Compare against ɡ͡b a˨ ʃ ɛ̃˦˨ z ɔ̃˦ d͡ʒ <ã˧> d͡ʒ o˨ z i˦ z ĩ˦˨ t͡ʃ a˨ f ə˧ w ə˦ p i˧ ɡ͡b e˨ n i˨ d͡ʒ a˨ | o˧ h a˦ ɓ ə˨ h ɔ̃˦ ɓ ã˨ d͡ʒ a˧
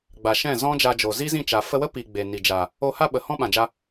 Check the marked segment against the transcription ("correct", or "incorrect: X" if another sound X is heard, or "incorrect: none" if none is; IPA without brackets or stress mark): incorrect: a˧